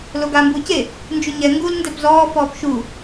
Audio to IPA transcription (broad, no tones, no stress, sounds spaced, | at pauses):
l o ɡ aː m b uː c e | n d͡ʒ u ɲ ɛ ŋ ɡ u l n d ɛ p z ɔː f ɔː p ʃ u